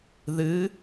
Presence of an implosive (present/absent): absent